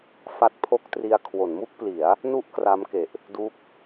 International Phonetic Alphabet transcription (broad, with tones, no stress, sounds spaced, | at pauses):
f a˦˥ t̚ pʰ o˥˩ k̚ t r i˧ a̯ kʰ w o˩˦ n m u˥˩ k̚ p l i˩˦ a̯ | n u˥˩ ʔ k r a˦˥ m k e˨˩ ʔ | d u˦˥ k̚